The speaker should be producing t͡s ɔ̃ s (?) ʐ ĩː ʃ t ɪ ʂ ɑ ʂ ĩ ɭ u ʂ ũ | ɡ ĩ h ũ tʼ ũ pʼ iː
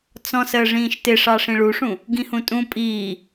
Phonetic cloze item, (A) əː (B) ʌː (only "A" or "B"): A